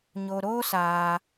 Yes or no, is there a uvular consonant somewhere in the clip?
no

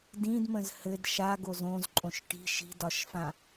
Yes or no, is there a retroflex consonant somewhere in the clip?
yes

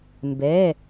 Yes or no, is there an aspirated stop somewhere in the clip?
no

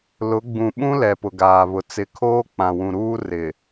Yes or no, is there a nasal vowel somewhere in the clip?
yes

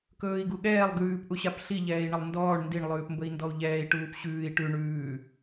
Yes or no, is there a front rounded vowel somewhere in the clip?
no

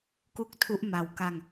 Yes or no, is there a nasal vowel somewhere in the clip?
no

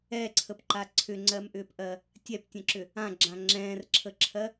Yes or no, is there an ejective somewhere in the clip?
no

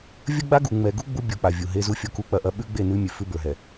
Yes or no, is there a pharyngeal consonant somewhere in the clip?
no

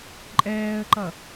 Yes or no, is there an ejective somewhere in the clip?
yes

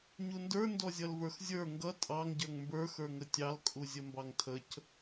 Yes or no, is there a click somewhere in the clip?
no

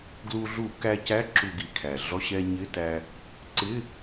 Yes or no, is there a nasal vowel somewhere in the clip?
no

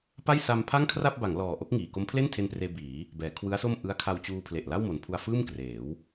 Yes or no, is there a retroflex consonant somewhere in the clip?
no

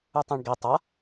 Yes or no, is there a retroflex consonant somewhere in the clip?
yes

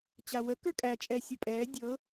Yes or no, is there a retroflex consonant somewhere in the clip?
no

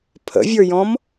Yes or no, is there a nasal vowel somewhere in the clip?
yes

